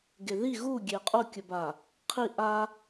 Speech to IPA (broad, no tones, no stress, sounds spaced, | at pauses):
ɡ e ð i ɣ u ɡʲ e qʼ o kʲ ə b a | qʰ i ʔ a